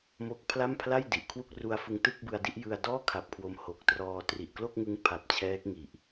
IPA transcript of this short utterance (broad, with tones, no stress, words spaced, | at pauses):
mo˦˥k̚pʰla˥˩m pʰla˥˩j di˨˩ʔkʰwu˥˩k̚ ru˧a̯fɯ˧ŋ tɯ˥˩k̚bɯ˧a̯di˥˩ʔjɯ˧a̯ dɔː˥˩kʰa˨˩p̚ kʰwo˧mho˨˩k̚trɔː˧ tri˨˩ʔklo˥˩k̚ŋɯ˦˥ŋ pʰa˨˩p̚ t͡ɕʰɛː˦˥k̚ ŋi˨˩ʔ